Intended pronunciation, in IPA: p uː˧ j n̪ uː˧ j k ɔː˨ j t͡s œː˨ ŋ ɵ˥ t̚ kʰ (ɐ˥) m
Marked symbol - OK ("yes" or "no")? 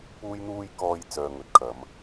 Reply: no